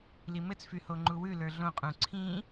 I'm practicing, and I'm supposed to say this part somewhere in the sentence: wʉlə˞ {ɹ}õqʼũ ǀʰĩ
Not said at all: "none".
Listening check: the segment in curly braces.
ɮ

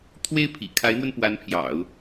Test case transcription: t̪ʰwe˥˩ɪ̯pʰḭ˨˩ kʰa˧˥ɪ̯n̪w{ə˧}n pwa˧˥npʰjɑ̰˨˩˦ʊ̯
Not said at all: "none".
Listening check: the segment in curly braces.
ə˧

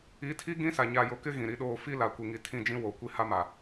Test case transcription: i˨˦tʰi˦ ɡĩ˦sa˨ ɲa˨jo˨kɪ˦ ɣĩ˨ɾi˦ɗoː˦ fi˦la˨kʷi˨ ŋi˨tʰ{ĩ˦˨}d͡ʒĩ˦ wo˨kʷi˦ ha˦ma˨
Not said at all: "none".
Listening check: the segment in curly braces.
ĩ˦˨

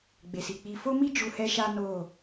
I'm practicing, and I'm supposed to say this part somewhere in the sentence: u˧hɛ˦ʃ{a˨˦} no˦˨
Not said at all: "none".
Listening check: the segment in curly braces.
a˦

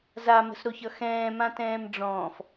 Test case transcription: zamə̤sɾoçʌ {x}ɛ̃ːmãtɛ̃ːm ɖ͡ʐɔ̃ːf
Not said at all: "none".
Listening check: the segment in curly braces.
x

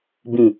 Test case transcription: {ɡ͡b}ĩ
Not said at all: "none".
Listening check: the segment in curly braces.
b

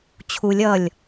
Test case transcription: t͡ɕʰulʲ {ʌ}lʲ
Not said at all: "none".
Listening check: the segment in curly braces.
ʌ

